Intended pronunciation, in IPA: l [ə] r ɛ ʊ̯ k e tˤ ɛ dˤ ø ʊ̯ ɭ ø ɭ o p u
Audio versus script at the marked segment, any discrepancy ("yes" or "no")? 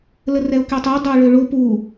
no